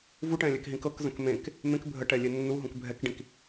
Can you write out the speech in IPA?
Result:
vuʈɛ̃ lʲɛkɦĩkɤkzə̃k mẽk | mẽk bʱəʈɛ lʲenːuɦũk bʱɛkɖĩk

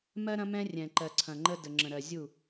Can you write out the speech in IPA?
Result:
mɜ˦ɾɐ̃˦ mɛ̃˦rʲɛ̃˨ ǃɜ˨ǀʰɐ̃˨ŋ͡ǃə˦ də˨ŋ͡ǁə̃˨ɾɜ˨ zʲu˦˨

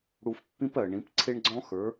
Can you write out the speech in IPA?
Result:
ɽu˧fpːĩ˦pɜ˨ɳĩ˨˦p ǀʰe˦ɳɡ͡ǀɔ̃˦xə˞˨˦

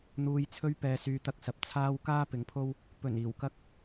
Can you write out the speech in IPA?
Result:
n̪uː˨jt͡sʰɵ˧ɥ pɛː˨syː˨t̪ɐ˧k̚sɐ˨p̚ t͡sʰaː˥w kaː˥pɪ˨˥ŋpʰo˥w | pɵ˨˩n iː˨˩wkɐ˥k̚

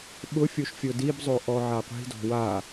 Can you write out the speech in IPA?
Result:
ɓʊfʲoʃ fʲodibzˤo ʔɔʕaqʷi̤dɔ̤ wa

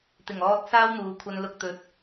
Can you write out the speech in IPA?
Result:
t̪ɪ˨˩ŋɔː˧t̚ saː˥wn̪uː˨˧ kʷʰɐ˧n lʊ˨k̚t̪ɵ˨˥t̚

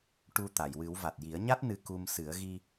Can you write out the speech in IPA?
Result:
ʈu˧t̪a˨˩˨jwɨ˨˩˦w va˨˩t̚ji˨˩˦ə̯ɲa˦˥t̚ nɨ˧ku˧m sɨ˨˩˦ə̯ɣi˧

